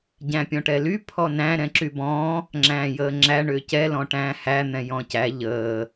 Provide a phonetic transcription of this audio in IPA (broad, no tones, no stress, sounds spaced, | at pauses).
ɟ æ̃ pʲ ɔ̃ ʈ ɛ l y pʰ ɔ n æ̃ ɾ ɛ̃ ǁ y b ɔ̃ː | ŋ͡ǁ æ̃ː j əː ŋ͡ǁ æ ɳ ʏː c ɛ l ɔ̃ ʈ æ̃ː h æ n̪ ɛ̃ j ɔ̃ c æ ʎ əː